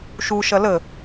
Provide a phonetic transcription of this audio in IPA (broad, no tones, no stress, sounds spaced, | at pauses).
ʃ u ʃ ɐ l ə